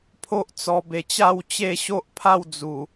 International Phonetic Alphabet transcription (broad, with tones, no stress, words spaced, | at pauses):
pʰo˦ʔt͡sɔ˧be˧t͡ɕa˥˧w t͡ɕe˥˧ɕo˦ʔpʰa˥˧w d͡zu˨˩